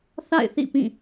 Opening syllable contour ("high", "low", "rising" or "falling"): falling